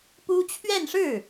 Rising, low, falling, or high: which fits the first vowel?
high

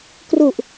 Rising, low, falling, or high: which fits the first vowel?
low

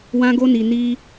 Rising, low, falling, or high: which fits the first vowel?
high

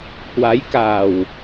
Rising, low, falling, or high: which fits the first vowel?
rising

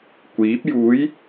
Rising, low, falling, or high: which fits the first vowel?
rising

